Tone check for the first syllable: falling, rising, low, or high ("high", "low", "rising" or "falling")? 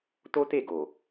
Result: high